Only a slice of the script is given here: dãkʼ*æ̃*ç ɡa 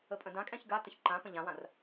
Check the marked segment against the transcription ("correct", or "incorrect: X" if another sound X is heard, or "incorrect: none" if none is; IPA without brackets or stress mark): incorrect: ɛ̃